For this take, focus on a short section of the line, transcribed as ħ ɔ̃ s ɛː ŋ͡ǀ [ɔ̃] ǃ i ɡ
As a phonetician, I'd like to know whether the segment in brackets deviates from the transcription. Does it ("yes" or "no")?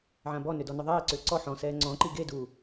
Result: no